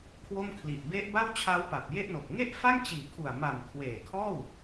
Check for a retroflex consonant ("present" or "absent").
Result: absent